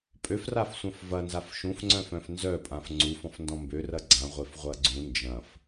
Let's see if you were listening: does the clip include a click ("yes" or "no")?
yes